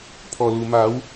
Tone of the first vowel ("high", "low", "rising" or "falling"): low